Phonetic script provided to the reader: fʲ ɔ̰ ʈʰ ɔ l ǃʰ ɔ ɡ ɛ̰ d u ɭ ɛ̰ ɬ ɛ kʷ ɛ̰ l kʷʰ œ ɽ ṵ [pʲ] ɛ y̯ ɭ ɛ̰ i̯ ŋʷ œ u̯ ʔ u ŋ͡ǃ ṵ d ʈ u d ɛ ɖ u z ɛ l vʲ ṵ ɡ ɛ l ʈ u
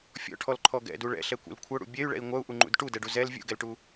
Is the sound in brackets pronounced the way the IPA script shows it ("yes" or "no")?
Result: no